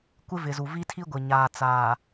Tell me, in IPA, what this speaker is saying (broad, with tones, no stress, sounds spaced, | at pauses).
kʷ ɪ˦ v ɪ˨ z u˨ v i˦ tʰ i˦ ɡʷ ɪ˨ ɲ aː˨ t͡s aː˨